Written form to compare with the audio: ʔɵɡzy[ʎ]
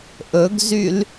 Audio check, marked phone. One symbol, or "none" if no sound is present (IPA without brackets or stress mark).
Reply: l